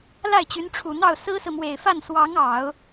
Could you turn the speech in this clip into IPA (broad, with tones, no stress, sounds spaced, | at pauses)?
l a˥˩ ɪ̯ t͡ɕ y˧˥ n ʈ͡ʂʰ u˨˩ n̪ ɑ˥˩ ʊ̯ s ɹ̩˥ s ɹ̩˨ m w e˨˩ ɪ̯ f a˥˩ n s w ɑ˧˥ ŋ ɑ˨˩˦ ʊ̯